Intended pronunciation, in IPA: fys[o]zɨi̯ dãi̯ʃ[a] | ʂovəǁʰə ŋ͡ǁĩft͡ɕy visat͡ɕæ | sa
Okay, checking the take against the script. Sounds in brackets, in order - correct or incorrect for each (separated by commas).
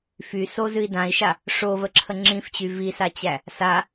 correct, correct